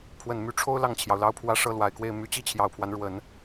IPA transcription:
pʰ w ə˨˩ n m y˧˥ ʈ͡ʂʰ o˥ ʊ̯ l ɑ˥˩ ŋ t͡ɕʰ j ɑ˩ ʊ̯ l ɑ˥ ʊ̯ pʰ w ä˥ ʂ ɤ˥˩ l w a˨˩ ɪ̯ k w e˥˩ ɪ̯ m y˧˥ t͡ɕ i˥˩ t͡ɕʰ j ɑ˨˩ ʊ̯ pʰ w a˦ n ɻ w ə˨˩˦ n

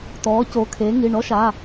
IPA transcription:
t ɔː˨˥ c o˨˥ kʰ e˨˥ ŋ i˩˧˩ ɳ ɔ˦˥ ʃ a˩˧˩

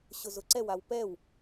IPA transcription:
ɕ ʊ z ʊ ǀ ɛ w a w p ɛ w

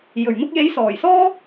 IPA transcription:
j ɵ˨˩ ɥ n̪ ʊ˧ k̚ j e˨˥ j s ɔː˨˩ j s ɔː˥

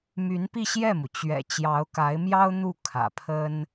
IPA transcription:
m y˧˥ n p i˥˧ ɕ j ɛ˥˩ m u˩ t͡ɕ ɥ ɛ̰˨˩ t͡ɕ j ɑ˧˥ ʊ̯ k a˧˥ ɪ̯ m j ɑ˥ ʊ̯ n̪ u˥˩ kʰ ä̰˨˩ pʰ ə˥ n

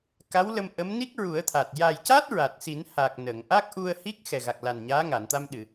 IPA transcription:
k a˧˥ w l ə˧ m ʔ ə˧˥ m n i˦˥ k̚ ɹ u˨˩˦ ə̯ t̪ʰ a˨˩ t̚ j a˨˩ j c a˦˥ t̚ ɹ a˨˩ t̚ s i˨˩˦ n h a˨˩ k̚ n ə˨˩˨ ŋ ʔ a˦˥ k̚ ʔ u˧ ə̯ h i˦˥ k̚ x ɛ˨˩ ɣ a˨˩ k̚ l a˨˩ n ɲ aː˧˥ ŋ a˨˩˨ n t̪ a˧ m ɗ ɨ˨˩˨

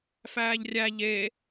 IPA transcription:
f æː ʎ rʲ æ ʎ e

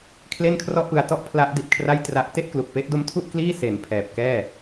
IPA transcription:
kʰ l e˥˩ n kʰ r ɔ˥˩ ʔ p ɯ˧ a̯ t ɔ˥˩ ʔ pʰ l a˦˥ ʔ d i˨˩ t̚ kʰ r a˥˩ j t r a˦˥ ʔ t e˥˩ ʔ k l u˨˩ k̚ p e˦˥ ʔ d o˦˥ m tʰ u˥˩ ʔ k l iː˥˩ s e˨˩ n pʰ ɛː˨˩ p̚ k ɛː˥˩

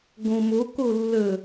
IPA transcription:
ɡ õ m o k o lː ə

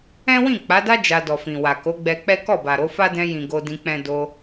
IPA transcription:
ɛ̃˦ w ĩ˦˨ k͡p a˨˦ d a˦ d͡ʒ a˧ d ɔ˨ f ĩ˨ w a˨ k o˨˦ ɡ͡b ɛ˧ k͡p ɛ˦ k ɔ˦˨ b a˨ ɾ o˨˦ f a˦ d ɛ̃˧ j ĩ˨ ɡ o˧ d ĩ˧ k͡p ɛ̃˦ d o˧

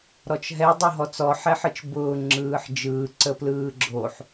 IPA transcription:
ɾ ɔ t͡ʃ ɦ ɛ dˤ o ɦ ɔ t͡s ɔ ħ ɛ ħ ɯ t͡ʃ b ʊː ŋ͡ǁ ɯː ħ d͡ʒ ɯː ǀ ə p l ɯː ɡ͡ǁ o ħ

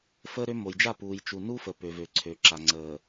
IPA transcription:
f əː˦ ɾ ø˦ m o˨ j d͡ʒ a˦˨ p uː˨ j t͡ʃ u˨ n u˦ f ə˨ p ø˨ v ø˨ ǀʰ ø˨ ǁ a˨ ŋ͡ǀ əː˨

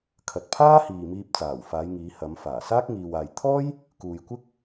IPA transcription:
kʰ ɐ˨ t̚ pʰ aː˥ h iː˨ m iː˧ p̚ t͡s aː˨˩ w f aː˨˧ j ŋ iː˨˧ h ɐ˨˧ m f aː˨˩ s aː˥ k̚ ŋ iː˨ w aː˨ j t̪ʰ ɔː˥ j | k uː˨ j kʷ ɪ˥ k̚

